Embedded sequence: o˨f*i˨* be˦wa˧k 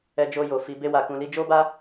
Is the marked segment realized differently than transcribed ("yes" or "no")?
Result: yes